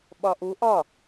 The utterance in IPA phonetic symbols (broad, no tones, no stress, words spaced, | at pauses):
ɓɒʔu ʔɒ